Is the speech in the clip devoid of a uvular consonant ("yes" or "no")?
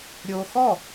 yes